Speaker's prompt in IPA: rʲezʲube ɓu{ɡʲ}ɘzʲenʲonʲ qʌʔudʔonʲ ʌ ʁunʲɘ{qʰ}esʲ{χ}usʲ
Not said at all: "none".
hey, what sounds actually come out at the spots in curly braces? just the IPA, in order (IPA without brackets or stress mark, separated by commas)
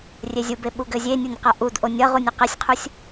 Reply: ɡ, q, qʰ